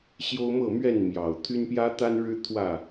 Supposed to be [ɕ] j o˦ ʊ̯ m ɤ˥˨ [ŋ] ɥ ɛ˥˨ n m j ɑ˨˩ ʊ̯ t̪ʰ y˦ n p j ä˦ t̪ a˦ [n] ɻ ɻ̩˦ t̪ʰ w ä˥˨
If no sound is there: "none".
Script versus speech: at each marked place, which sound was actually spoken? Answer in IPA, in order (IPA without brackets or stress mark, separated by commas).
ɕ, m, n